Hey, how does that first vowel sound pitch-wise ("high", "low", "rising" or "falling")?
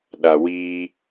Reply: low